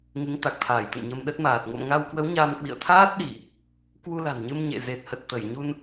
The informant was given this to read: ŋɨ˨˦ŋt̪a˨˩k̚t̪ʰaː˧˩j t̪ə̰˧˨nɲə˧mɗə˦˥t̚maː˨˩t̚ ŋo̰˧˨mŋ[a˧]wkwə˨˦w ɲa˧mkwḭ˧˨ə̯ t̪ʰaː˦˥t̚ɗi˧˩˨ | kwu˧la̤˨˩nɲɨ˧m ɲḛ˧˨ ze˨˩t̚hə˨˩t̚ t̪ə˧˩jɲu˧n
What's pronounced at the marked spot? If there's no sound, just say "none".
a˧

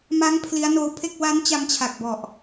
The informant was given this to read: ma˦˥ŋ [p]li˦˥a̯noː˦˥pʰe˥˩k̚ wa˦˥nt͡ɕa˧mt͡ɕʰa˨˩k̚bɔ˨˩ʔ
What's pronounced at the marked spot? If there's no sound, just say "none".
pʰ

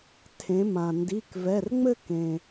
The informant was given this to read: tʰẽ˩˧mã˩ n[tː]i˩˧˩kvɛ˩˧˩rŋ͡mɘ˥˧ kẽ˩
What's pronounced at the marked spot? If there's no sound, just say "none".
d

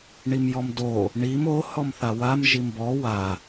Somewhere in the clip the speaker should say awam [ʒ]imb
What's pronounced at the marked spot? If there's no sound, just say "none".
ʒ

